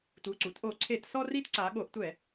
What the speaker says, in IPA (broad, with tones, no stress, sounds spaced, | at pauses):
t u˩˧˩ ǀ u˩˧ t ʔ o˧˩˧ ǀʰ e˧˩˧ t s ɔ˦ r i˦ t ǀ a˩˧ ɠ o˩˧ ʔ tʷ ɛ˧˩˧